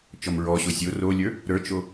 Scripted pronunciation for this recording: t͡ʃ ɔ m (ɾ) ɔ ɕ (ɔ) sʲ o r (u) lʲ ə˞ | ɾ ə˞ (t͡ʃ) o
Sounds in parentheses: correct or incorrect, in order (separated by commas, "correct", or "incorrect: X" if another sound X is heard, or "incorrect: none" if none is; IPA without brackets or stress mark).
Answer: incorrect: ɹ, incorrect: o, incorrect: o, correct